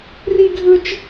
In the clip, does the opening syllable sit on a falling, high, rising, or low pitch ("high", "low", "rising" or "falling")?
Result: high